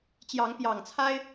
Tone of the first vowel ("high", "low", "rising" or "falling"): rising